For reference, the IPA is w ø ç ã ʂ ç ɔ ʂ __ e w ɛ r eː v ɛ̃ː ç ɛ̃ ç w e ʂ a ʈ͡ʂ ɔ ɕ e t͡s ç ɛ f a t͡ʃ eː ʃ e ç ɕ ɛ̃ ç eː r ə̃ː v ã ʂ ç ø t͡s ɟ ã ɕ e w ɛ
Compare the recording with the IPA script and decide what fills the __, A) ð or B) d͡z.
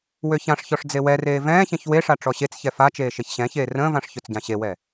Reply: B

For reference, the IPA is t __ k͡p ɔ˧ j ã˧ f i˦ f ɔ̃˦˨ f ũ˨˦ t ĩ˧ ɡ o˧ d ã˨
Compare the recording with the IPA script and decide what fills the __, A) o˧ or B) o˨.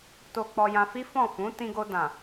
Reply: A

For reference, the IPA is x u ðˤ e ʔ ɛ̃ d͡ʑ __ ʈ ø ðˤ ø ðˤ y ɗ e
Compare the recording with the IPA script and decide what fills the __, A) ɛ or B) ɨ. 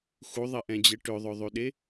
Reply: A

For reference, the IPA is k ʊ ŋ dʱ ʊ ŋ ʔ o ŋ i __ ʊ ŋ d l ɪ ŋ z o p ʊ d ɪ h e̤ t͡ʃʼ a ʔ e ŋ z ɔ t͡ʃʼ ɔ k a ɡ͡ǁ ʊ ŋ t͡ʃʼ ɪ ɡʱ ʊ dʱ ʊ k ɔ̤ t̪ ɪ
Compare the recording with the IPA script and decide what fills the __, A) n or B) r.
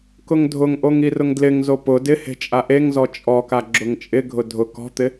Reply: B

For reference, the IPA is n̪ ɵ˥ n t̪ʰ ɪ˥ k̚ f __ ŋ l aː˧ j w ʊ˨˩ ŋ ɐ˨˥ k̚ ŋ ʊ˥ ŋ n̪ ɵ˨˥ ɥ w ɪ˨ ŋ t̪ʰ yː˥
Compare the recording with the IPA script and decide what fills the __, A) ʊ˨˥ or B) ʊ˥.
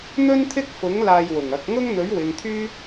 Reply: A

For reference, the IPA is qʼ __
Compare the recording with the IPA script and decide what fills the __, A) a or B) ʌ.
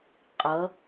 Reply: B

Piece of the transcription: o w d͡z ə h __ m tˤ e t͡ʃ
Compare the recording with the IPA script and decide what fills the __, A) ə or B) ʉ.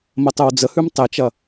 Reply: B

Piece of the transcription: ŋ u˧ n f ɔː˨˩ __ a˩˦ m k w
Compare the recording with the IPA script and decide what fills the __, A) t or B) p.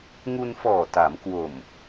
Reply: A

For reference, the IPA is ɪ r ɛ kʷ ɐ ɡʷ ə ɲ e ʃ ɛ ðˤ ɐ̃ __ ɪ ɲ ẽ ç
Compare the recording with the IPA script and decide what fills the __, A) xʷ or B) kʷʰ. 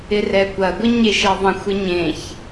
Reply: A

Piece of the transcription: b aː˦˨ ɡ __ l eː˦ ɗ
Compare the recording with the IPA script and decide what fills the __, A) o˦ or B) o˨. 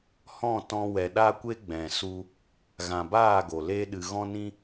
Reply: B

